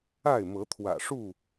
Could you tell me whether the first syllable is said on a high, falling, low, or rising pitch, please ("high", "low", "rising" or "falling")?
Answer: falling